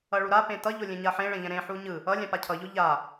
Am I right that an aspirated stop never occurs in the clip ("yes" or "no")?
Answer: no